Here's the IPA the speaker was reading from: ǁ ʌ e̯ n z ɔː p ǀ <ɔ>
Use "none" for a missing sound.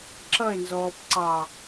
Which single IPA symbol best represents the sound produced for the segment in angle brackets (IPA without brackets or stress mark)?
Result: ɑ